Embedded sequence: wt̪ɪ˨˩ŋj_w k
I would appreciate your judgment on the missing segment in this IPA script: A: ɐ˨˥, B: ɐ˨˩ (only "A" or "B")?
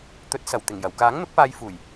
B